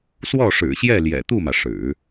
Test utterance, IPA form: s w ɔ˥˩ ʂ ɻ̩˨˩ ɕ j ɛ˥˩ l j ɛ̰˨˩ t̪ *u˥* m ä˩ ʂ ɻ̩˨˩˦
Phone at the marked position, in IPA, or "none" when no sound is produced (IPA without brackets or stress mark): u˥˩